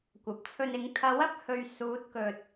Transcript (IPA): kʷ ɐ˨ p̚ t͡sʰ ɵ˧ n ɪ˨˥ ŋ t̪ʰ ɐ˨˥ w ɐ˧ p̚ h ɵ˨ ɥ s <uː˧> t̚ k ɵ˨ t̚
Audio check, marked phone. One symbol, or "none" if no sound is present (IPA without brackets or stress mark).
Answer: uː˨˥